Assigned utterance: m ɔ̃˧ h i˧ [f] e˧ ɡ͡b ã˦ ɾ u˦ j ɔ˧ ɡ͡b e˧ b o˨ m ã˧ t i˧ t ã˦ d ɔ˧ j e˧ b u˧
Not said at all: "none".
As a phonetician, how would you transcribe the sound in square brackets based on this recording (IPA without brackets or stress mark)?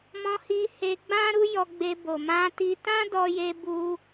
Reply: h